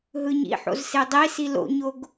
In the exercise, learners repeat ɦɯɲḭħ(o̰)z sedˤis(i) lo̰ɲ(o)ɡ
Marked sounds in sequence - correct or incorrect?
correct, correct, correct

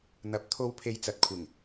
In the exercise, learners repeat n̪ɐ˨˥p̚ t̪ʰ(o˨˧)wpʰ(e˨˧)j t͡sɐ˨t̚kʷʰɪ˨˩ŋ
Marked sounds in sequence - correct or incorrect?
correct, incorrect: e˨

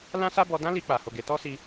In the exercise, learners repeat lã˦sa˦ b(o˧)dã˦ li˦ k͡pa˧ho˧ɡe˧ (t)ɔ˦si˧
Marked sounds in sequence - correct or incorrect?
incorrect: ɔ˧, correct

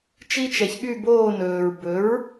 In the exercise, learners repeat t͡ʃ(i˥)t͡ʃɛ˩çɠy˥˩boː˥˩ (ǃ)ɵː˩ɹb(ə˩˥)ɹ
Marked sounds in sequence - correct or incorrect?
correct, incorrect: n, incorrect: ɵ˩˥

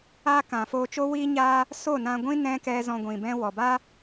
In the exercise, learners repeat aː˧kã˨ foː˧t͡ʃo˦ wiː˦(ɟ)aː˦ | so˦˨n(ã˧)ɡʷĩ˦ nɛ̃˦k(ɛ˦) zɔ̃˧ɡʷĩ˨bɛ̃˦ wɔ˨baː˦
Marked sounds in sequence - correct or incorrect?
incorrect: ɲ, correct, correct

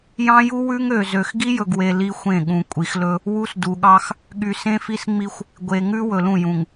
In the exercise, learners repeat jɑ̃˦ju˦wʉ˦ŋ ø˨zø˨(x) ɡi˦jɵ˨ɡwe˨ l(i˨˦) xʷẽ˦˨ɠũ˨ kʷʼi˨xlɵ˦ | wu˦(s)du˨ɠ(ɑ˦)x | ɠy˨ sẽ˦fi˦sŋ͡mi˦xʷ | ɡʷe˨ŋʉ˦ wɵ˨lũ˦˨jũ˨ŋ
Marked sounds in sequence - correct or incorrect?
correct, incorrect: i˦, correct, correct

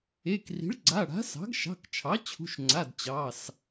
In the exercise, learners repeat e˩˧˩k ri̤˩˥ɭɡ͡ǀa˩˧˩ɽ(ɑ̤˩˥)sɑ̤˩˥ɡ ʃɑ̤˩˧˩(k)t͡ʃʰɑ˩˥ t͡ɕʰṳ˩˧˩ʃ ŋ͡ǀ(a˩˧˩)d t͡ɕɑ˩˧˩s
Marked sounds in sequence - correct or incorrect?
incorrect: a̤˩˥, correct, correct

